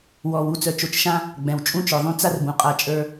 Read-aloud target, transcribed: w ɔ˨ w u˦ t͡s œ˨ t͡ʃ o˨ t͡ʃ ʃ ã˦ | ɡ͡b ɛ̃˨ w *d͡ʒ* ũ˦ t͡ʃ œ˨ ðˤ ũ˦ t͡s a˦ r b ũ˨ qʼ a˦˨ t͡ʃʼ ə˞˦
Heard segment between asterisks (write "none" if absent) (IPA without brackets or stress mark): t͡ʃʼ